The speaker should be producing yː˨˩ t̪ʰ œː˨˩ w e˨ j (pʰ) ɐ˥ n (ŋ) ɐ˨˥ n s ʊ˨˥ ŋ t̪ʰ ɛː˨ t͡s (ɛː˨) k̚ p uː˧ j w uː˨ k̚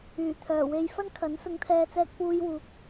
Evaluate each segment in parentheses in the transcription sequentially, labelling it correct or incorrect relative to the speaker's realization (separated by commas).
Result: incorrect, incorrect, incorrect